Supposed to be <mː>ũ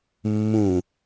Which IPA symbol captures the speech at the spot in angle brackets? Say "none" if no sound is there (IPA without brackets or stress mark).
mː